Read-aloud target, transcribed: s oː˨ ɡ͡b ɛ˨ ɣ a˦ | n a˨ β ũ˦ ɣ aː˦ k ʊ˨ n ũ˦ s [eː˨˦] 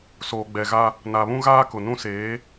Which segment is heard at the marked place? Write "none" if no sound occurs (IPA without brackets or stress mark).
eː˨˦